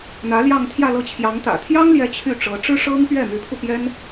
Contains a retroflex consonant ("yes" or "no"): yes